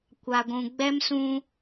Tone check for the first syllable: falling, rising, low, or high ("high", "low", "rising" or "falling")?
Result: low